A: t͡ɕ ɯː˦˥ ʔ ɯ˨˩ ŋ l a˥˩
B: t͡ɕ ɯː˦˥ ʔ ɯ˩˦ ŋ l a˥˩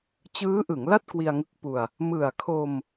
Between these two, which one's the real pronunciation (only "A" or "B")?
B